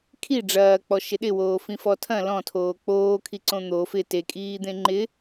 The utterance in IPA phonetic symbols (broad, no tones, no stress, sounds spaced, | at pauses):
kʰ i ɖ͡ʐ ɐː k͡p ɔ ʃ ɪ ɗ ɪ w oː f ĩ f ɔ tʰ ɐ̃ l ɔ̃ tʰ oː k͡p oː kʰ i ǀ õ n̪ o f ɪ t e kʼ iː d̪ ẽ ŋ͡ǃ ɪ